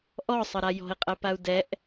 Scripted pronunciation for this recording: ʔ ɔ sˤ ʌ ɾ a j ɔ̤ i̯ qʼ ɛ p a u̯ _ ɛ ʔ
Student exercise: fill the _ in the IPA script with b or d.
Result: d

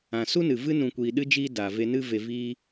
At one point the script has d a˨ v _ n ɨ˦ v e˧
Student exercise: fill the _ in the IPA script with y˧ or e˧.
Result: e˧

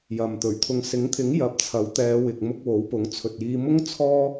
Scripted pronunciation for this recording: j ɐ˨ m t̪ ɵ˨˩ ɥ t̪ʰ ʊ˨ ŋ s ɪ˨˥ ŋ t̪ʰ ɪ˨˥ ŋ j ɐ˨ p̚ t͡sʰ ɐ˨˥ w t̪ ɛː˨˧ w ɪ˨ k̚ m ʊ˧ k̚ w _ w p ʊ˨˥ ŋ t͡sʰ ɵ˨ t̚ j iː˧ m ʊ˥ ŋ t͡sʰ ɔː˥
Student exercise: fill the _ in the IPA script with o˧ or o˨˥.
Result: o˨˥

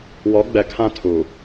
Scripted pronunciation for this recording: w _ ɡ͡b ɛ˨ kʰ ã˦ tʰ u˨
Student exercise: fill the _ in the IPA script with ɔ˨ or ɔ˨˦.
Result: ɔ˨˦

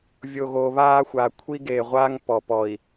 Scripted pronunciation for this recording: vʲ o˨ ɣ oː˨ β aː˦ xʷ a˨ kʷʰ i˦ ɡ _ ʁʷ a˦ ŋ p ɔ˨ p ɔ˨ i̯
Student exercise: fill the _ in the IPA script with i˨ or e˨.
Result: e˨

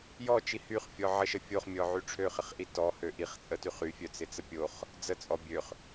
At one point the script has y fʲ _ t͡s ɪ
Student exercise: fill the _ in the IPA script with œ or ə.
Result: œ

